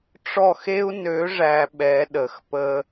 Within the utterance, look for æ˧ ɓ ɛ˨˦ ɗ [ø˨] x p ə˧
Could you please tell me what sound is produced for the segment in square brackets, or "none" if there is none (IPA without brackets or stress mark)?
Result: ə˨